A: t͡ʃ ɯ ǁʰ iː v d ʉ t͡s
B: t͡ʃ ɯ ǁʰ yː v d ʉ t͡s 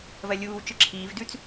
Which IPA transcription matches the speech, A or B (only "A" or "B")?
A